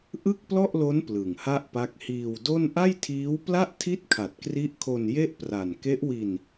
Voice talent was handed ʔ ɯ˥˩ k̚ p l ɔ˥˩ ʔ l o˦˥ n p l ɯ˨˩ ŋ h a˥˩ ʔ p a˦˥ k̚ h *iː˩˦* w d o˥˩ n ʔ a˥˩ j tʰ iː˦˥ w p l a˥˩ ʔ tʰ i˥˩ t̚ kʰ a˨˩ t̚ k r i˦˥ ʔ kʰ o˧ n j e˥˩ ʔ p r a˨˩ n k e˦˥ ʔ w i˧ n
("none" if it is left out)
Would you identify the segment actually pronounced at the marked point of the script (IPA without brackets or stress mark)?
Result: iː˧